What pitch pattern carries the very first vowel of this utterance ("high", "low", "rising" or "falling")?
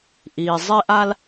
low